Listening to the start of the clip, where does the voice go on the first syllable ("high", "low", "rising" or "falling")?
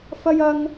high